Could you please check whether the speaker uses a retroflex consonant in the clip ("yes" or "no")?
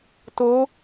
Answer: no